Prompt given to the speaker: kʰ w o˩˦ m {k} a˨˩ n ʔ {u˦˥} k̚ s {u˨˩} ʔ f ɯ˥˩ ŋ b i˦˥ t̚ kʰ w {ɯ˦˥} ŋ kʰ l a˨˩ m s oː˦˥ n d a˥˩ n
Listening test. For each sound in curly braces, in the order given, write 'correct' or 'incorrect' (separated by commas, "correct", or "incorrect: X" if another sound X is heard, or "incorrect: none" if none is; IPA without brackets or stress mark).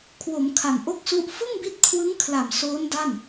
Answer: incorrect: kʰ, incorrect: o˦˥, incorrect: u˦˥, correct